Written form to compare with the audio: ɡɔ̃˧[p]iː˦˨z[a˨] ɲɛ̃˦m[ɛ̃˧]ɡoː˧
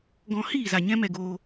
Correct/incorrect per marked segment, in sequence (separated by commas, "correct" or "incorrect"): incorrect, correct, incorrect